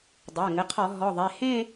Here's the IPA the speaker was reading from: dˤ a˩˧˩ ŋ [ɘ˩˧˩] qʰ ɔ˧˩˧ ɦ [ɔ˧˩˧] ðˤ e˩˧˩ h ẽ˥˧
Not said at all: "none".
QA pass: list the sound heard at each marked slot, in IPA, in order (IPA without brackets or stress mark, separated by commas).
ɘ˩˧˩, ɔ˩˧˩